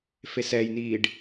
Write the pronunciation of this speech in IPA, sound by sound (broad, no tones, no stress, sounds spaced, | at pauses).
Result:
f e s ɛ j n iː ɖ